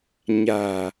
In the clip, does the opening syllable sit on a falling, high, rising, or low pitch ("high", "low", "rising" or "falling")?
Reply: low